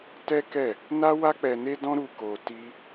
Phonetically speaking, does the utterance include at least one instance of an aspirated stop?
no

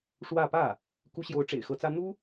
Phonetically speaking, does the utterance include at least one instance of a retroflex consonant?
yes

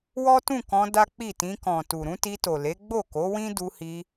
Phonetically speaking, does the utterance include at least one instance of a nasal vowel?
yes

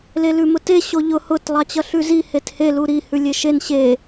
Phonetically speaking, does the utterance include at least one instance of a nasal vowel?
no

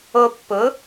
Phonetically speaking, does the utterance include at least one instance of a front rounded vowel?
no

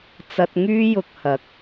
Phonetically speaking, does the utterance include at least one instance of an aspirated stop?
no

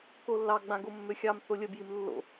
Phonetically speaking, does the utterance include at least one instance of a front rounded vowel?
yes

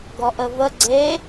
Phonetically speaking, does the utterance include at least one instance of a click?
yes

